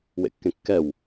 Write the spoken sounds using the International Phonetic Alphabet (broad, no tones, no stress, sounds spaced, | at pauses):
w ḛ kː ẽ kː ɛ w